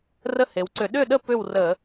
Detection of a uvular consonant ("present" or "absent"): absent